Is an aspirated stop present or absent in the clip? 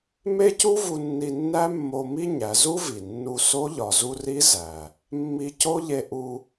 absent